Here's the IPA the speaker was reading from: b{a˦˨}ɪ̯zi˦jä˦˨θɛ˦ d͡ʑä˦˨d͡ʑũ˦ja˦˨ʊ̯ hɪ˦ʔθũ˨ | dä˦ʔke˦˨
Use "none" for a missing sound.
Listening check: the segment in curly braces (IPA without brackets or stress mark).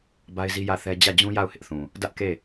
a˦